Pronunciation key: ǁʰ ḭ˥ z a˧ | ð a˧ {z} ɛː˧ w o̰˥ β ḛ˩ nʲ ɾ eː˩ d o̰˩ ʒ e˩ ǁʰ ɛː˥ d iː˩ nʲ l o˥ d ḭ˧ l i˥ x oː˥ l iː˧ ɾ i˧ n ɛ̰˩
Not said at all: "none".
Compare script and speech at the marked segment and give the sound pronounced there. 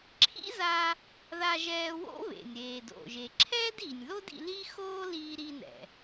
ʒ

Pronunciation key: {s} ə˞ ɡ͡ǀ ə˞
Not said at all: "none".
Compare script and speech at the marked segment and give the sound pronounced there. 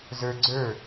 z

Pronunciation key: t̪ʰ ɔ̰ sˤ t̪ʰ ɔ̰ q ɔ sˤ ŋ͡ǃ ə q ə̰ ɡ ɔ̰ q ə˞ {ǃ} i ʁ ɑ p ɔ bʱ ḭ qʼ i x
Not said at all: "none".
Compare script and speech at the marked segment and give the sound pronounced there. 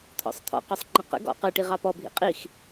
ʈ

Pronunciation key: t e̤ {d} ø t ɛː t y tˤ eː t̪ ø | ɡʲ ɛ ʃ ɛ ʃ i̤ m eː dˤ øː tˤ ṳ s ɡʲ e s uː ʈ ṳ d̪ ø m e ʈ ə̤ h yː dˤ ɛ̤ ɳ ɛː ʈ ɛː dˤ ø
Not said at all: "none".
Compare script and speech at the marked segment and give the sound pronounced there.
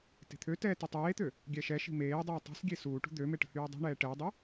t̪ʰ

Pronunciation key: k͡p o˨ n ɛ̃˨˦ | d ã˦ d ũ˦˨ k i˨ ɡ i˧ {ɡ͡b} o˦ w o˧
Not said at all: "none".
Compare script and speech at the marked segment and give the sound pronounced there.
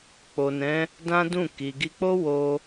k͡p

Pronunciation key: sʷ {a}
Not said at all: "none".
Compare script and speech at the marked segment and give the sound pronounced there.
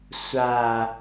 a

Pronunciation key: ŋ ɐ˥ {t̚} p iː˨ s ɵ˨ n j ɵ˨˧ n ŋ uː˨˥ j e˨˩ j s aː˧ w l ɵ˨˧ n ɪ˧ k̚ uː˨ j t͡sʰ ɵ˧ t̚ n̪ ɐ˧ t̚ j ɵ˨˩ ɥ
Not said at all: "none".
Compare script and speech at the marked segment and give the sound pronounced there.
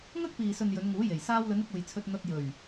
k̚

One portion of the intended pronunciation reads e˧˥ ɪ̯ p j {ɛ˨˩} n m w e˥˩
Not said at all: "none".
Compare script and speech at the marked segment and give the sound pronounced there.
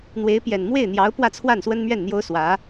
ɛ˨˩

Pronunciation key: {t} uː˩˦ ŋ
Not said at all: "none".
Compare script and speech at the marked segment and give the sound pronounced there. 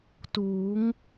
t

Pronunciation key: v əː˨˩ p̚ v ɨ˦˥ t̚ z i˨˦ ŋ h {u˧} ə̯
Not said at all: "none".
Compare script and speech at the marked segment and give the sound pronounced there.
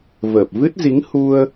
u˧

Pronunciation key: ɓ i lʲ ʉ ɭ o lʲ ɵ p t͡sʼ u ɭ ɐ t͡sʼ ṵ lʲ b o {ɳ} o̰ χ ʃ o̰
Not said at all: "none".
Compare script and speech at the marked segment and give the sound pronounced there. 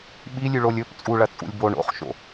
ɳ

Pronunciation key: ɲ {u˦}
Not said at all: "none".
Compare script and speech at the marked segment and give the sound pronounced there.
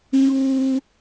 uː˦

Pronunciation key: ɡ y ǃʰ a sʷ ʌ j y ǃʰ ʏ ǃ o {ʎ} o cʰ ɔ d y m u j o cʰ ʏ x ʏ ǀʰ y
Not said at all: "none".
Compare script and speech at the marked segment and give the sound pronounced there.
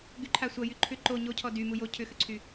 ɲ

